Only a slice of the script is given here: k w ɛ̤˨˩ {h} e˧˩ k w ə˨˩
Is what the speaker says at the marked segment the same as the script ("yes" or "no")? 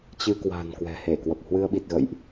yes